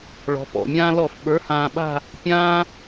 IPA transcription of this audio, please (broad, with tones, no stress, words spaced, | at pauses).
ɭɔ̤˩˧pɔ̰˨˩mʲãː˦ lɔ˧˩˧fɓə˞˩˥ hãː˨˩ɓa̤˦˨ | pʲãː˦